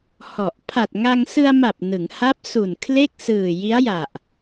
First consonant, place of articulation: glottal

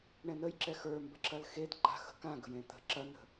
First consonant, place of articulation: retroflex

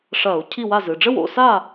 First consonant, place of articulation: retroflex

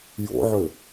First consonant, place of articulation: palatal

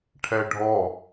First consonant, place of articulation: retroflex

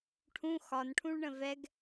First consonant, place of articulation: retroflex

